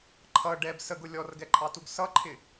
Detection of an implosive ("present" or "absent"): absent